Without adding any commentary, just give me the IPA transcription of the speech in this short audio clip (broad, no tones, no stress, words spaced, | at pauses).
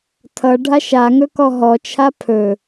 tʰʌɖʱa ʃaŋɵkɔ ɦɔt͡ʃʰa pʰɵ